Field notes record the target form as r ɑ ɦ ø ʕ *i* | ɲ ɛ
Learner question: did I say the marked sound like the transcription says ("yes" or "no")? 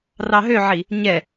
yes